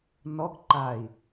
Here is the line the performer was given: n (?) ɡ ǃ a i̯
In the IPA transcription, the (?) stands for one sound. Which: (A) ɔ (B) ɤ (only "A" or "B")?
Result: A